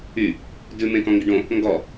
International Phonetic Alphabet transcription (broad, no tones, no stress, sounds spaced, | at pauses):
y | d ʉ m ẽ k ɔ̃ ŋ ɡ ɪ ɖ õ | ŋ ɡ ɔ